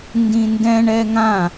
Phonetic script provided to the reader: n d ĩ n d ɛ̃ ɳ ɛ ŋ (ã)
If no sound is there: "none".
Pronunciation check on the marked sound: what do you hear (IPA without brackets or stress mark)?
ã